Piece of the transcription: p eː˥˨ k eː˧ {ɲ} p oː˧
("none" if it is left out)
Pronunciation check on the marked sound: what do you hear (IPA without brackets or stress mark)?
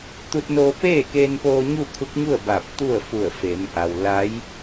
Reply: n